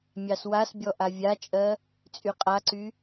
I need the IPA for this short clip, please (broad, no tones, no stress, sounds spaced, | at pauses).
mʲ ɑ s w a s bʲ ɔ ʔ a vʲ a t͡ʃʼ ɜ | t͡sʼ y qʼ a ǀ y